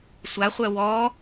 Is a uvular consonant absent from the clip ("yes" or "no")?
no